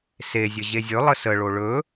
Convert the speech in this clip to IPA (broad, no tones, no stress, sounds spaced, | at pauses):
s e zʲ ə ʑ e zʲ ɵ lˠ ə s ə ɭ o ɭ ɵ